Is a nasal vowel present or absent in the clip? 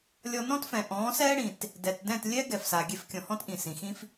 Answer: present